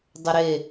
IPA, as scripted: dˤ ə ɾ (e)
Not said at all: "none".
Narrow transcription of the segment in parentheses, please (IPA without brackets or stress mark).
e